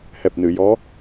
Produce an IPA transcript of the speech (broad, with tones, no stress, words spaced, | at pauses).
hɛ˨˩p̚nɨ˨˩˨jɔ˧˥